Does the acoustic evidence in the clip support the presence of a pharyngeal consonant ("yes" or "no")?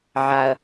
yes